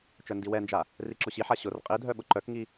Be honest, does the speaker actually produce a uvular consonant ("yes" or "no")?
yes